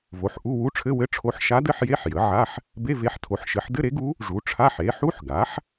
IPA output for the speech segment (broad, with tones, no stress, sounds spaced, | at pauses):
v o˩˥ ħ ʔ u˧˥˧ w u˧˥ ʈ͡ʂʰ ɘ˧˥˧ w ɘ˧˥˧ ʈ͡ʂʰ o˧˥ ħ ʃ a˧˥ d ɘ˧˥˧ ħ j e˧˥˧ ħ j ə˩˥ ʕ a˧˥˧ ħ | b e˧˥˧ v e˧˥ ħ tʰ o˩˥ ħ ʃ ɘ˩˥ ħ d ɘ˧˥˧ ɾ e˩˥ ɡ u˧˥ | ʐ u˩˥ ʈ͡ʂʰ a˧˥˧ ħ e˩˥ ħ u˧˥˧ ħ ɡ a˩˥ ħ